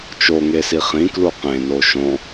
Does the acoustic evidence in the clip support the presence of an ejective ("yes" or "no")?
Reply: no